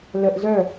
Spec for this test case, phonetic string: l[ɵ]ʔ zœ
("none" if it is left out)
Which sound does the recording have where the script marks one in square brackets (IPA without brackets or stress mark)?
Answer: ə